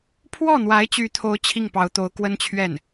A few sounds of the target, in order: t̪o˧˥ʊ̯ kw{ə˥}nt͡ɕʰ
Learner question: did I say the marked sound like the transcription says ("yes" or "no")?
yes